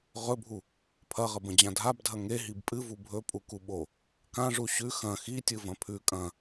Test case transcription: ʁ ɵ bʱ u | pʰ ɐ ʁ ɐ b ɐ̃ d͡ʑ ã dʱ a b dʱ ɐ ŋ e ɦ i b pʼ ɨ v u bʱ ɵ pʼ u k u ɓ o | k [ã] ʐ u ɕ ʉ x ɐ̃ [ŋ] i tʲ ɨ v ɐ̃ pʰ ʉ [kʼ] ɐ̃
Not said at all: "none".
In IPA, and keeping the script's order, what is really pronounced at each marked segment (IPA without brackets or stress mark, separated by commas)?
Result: ã, x, kʼ